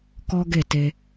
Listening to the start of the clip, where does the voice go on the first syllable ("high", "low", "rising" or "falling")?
high